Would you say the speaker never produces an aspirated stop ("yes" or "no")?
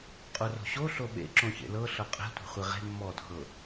yes